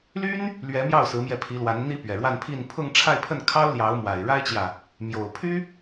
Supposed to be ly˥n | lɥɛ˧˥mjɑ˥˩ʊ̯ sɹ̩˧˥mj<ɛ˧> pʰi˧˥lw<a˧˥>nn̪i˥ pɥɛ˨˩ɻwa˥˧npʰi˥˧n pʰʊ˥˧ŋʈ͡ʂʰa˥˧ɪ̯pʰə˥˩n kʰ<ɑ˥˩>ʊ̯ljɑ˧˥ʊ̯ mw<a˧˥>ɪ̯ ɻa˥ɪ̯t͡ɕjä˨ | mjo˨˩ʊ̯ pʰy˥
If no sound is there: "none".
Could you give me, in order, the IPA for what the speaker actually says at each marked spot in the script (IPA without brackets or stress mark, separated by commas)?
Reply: ɛ˧, a˧˥, ɑ˥, a˨˩